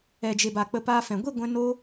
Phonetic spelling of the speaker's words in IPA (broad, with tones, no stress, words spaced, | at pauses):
ɛ˨d͡ʒe˨ba˨ k͡pə˧paː˧fɛ̃˨ ɡʷi˦˨ɡʷɛ̃˧ no˦